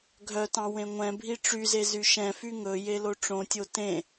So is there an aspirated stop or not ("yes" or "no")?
no